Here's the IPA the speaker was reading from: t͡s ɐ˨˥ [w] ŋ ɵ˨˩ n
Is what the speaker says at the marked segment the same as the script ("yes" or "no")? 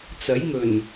no